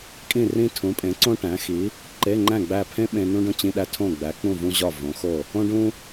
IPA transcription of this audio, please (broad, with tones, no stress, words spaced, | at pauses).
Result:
kʼĩ˥˨rĩ˥ tʰũ˨˥pʼẽ˨˥ǀõ˥ʈæ̃˨˥ xi˨˥ | ǃe˧˥˧ŋ͡ǃæ̃˥˨ ɡ͡bæ˥˨ pʰẽ˥ ɓẽ˥ nũ˥ɖõ˥t͡ɕĩ˧˥˧ ɗæ˥tʰõ˥˨ ɡ͡bæ˨˥ k͡pũ˥˨vũ˥ʑɒ˥˨ võ˨˥xo˥˨ | õ˥ɖũ˥